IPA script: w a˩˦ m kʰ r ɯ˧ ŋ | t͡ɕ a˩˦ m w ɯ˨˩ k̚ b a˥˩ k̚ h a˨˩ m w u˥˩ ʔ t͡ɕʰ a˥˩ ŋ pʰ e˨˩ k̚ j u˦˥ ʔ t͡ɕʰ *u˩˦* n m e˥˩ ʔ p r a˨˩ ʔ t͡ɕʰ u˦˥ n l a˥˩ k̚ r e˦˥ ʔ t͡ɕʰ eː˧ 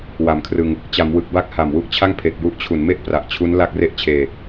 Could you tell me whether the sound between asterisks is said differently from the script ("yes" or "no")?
no